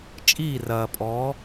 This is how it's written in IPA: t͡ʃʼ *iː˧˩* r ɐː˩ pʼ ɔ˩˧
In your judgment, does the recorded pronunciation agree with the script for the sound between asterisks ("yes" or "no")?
yes